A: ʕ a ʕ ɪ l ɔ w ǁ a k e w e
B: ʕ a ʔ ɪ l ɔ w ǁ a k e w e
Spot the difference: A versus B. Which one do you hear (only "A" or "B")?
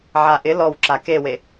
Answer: B